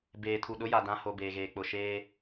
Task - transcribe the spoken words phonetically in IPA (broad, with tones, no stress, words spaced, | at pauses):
beː˨tʰu˨ɗʊ˨˦ ja˨dã˦ho˨ beː˨ɣeː˨k͡pʊ˨ ʃeː˦